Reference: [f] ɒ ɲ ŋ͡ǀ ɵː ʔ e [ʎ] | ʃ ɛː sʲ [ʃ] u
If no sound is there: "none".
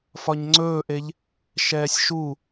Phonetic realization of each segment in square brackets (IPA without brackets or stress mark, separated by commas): f, ʎ, ʃ